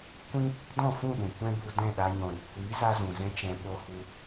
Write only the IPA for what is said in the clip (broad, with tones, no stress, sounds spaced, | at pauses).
kʷ ĩ˦ | d ɔ̃˦˨ f ũ˦˨ ɗ ũ˨ kʷ ɛ̃˦ b u˧ d ɛ̃˦˨ ɗ a˧ ɲ ɔ̃˨ ɾ i˨ kʷ iː˨˦ z a˧ z ũ˨ z ɛ̃˧ t͡ʃ ɛ̃˨ ɓ o˧ h u˧